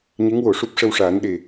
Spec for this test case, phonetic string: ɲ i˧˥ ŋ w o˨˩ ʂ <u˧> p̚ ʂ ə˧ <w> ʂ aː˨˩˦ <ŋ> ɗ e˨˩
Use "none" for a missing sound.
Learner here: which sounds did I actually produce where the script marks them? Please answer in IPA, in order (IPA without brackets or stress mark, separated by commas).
u˦˥, w, n